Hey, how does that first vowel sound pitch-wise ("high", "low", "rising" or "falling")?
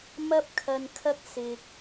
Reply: high